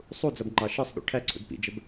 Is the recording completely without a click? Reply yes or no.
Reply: no